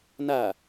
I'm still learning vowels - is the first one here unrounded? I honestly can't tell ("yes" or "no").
yes